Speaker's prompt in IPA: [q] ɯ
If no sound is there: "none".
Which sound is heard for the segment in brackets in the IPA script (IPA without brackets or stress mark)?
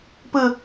p